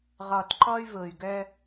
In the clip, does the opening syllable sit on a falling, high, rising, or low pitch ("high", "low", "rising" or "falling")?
low